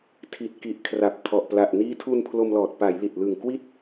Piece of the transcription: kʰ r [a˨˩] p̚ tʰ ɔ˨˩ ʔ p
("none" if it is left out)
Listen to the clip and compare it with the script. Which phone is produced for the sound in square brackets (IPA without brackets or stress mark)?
a˨˩